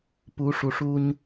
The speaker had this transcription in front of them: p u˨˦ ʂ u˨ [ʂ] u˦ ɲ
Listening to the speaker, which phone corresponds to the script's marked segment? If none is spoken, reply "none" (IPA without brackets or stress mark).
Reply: ʂ